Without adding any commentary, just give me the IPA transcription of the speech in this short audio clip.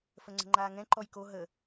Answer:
fəŋ͡ǀə̤ŋ͡ǃaːŋɛ̃ ǃɔjko ɦə

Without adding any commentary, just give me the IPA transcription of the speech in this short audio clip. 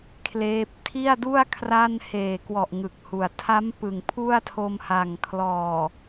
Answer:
kʰleː˦˥p̚ tʰi˥˩a̯du˥˩a̯ kʰra˥˩n heː˨˩kwɔ˨˩ʔ ŋɯ˨˩k̚hu˨˩a̯ tʰa˦˥m pɯ˨˩ŋpʰu˥˩a̯tʰo˧mha˨˩ŋ kʰlɔː˨˩

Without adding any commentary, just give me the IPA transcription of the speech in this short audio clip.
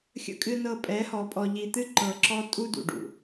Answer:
xʲə̰˨kʼɨ˨nɤ˨ pʼɛ˨˦hɔ˨pʼɔ˨ ʎi˨t̪ɨ˦ǃɤ˨ǁɔ˦ tʼu˦dṵ˨ɖṵ˨

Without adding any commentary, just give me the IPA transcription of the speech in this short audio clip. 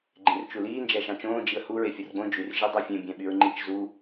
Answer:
ɡ͡ǃẽrt͡ʃuliː nd͡ʒæʃɑ̃t͡ʃõː d͡ʒiə̯hu ɹefʲɯrɡ͡bõ d͡ʒyr ʒidˤofʲẽ bʲæ̃ɓyɹŋ͡ǃit͡ʃ zu

